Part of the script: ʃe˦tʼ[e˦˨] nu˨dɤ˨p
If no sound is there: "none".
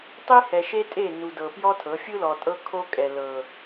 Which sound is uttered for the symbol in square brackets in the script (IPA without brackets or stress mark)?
e˦˨